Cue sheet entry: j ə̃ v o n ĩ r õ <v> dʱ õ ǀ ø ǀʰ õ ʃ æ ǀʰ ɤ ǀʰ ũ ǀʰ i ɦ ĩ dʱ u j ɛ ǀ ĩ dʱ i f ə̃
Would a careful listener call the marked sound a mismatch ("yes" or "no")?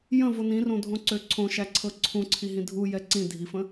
yes